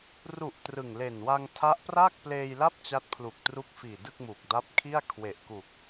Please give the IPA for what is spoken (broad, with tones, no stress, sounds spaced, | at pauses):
r u˨˩ ʔ t r ɯ˨˩ ŋ l e˨˩ n w a˧ ŋ tʰ a˦˥ ʔ p r aː˥˩ k̚ p l eː˧ j l a˥˩ p̚ t͡ɕ a˦˥ t̚ pʰ l u˨˩ k̚ t r u˦˥ k̚ f iː˨˩ d ɯ˥˩ k̚ m uː˨˩ k̚ d a˦˥ p̚ kʰ i˥˩ a̯ kʰ w e˨˩ ʔ k u˨˩ k̚